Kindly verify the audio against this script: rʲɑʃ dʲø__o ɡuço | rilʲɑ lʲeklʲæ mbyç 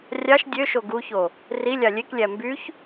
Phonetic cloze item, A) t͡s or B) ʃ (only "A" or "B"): B